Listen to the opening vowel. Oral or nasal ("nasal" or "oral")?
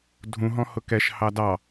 nasal